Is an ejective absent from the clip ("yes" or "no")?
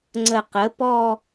yes